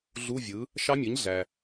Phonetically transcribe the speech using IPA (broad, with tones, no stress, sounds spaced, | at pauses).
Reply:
ɮ u˧˥˧ vʲ ɯ˩˥ | ʃ ɑ˦˥ mʲ ɯ˩˥ ɲ ɮ æ˩